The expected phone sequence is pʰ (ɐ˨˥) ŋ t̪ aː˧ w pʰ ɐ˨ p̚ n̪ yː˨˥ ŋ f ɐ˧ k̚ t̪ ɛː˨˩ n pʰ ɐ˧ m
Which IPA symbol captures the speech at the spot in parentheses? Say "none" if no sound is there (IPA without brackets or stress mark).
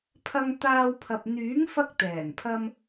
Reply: ɐ˧